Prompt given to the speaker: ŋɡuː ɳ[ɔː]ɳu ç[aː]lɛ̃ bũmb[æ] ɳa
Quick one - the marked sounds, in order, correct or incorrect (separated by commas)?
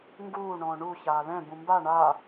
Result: incorrect, correct, incorrect